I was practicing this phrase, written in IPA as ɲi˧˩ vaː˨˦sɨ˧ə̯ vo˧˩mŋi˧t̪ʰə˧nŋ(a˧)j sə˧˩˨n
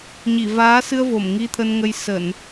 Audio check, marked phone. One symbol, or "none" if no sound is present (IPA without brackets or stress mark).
ə˧